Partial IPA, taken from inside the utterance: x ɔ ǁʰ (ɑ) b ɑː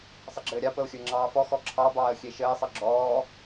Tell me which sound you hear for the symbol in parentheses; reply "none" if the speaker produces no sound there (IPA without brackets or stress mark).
ɑ